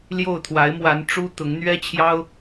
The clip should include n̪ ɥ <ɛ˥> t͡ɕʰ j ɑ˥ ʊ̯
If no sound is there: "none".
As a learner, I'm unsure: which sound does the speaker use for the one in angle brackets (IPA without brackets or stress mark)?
ɛ˥